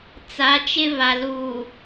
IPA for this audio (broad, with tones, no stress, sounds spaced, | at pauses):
t͡s a˨˦ t͡ʃ ɪ˦ β a˨ l uː˨